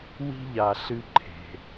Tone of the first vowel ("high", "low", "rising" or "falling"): high